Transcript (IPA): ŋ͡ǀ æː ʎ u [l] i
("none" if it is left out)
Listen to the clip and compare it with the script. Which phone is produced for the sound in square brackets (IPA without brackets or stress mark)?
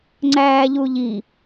ʎ